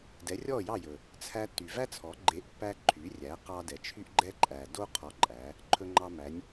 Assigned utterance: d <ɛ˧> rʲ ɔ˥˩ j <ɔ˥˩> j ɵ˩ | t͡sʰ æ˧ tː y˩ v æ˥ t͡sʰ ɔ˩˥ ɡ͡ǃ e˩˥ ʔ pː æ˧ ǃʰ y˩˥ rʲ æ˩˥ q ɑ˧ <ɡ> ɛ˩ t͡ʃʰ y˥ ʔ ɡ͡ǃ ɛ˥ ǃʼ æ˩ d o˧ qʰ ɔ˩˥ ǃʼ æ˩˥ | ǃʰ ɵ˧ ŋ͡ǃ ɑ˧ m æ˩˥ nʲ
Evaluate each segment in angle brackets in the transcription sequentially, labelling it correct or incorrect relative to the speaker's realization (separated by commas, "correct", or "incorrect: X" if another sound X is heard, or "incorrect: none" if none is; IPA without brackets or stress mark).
incorrect: ɛ˩˥, incorrect: ɑ˥˩, incorrect: d